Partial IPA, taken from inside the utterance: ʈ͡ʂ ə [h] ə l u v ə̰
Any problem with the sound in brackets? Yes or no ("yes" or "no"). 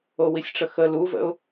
yes